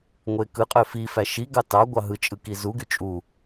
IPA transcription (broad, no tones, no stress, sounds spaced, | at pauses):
ŋʷ e k ɯ qʼ ø f i f æ ʃ i ɡ ɑ t ɑ ɡʷ ɑ ɦ ɯ t͡ʃʼ ɯ k i z u ɡ y t͡ʃʼ u